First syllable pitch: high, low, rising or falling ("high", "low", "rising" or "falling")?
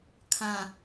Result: low